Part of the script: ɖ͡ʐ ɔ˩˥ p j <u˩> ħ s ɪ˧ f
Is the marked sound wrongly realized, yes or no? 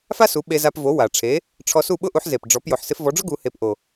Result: yes